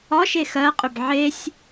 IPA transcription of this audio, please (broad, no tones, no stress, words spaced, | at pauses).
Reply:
ɒʃe xɜqʼʏb ʕesʲ